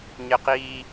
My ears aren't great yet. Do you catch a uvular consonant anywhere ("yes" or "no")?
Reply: yes